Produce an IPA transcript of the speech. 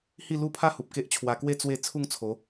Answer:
h i˥˧ l u˥˧ pʰ a˦ h u˨ p̚ k e˦ ʔ t͡ɕʰ w a˧ k w e˦ t͡s w e˥˧ t͡sʰ u˥˧ ŋ t͡sʰ o˨˦

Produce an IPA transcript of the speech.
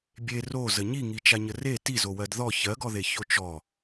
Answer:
bʲ e r o z ə ɲ i ŋ i t͡ʃ a ɲ ə r e t i z o w ɜ d ð ɔ ç ɜ ɡ ɔ ð e ç o t͡ʃ ɔ

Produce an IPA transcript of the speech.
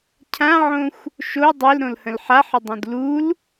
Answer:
cʰ ã ʕ õ xʷ | ʃ o dˤ e l ɾ õ l h ə̃ l ħ a ħ ə dˤ ũ d l u l

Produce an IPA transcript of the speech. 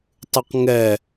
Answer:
tˤ ʉ q ŋ ɛ

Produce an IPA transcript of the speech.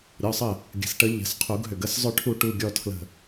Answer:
ɾʲ ɔ˩˧˩ sˤ ə˧˩ | ɡʲ ə̤˩ s ʈ ə˨˩˦ ʎ ə̤˩˧˩ s qʰ u˨˩˦ ɡ ɦ ʏ˩ ɡ ə˩˧˩ s zˤ ʏ˨˩˦ ʈʰ u˨˩˦ ʈ u˩˧˩ ɡʲ ɔ˧˩ tʰ l ə̤˧˩

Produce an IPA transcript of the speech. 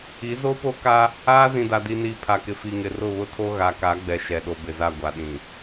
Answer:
i˨˦ z o˦ p o˦ k a˦ | aː˦ z ĩ˨ d a˨ d i˨ n iː˨ pʰ a˨ k ɪ˨ f i˨ ŋ ɪ˨ r ʊ˦˨ β ʊ˦ tʰ o˦ ɣ a˨ k a˨˦ ɡ͡b ɛ˨ ʃ ɛ˨ ɗ o˨ b ɪ˨ z a˦˨ ɡʷ a˨ ɗ ĩ˨

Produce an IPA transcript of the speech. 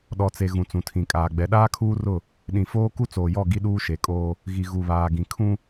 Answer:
ɗ ɔ˨ t͡s e˨ ɣ ũ˨ t͡s ũ˨ tʰ ĩ˨ kʼ aː˨ ɡ͡b ɛ˨ ɗ aː˦ kʰ uː˦ r ʊ˦˨ | ɗ ĩ˨ f oː˦ k u˦ t͡s oː˨ j ɔ˦˨ ɡ i˦ ɗ uː˦ ʃ e˨˦ kʼ oː˦ | ɣ i˨ ɣ u˨ β aː˨ ɡ ĩ˨ kʰ ũ˦

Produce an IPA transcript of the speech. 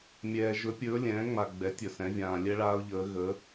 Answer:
mʲ ɛː˨ ʒ ɵ˧˥ pʲ ɵː˧˥ lʲ ɛ̃ː˩˥ ŋ͡m a˨ ɡ͡b ɛ˩˥ tʲ ɵ˨ s ɛ̃˩˥ vʲ ãː˨ lʲ ɛ˥ ɭ aː˥ ʊ̯ ʎ əː˧˥ ɣ ə˧˥

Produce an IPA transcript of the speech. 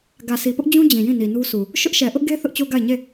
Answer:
ɡ ä˨ s i˨ p ʊ˦ ʔ d͡ʑ ũ˦ d͡ʑ ĩ˨ j ĩ˦˨ n i˨ n u˦ s u˨ | ʃ ʊ˦ ʔ ʃ ɛ˨ ʔ ʊ˦ ʔ ɡ e˦ θ ʊ˦ ʔ t͡ɕ o˦ ɡ a˦˨ ɪ̯ ɲ e˦˨

